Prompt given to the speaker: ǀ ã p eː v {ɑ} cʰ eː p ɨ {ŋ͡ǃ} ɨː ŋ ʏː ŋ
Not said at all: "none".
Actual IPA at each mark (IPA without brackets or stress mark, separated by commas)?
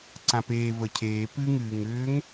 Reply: ə, ŋ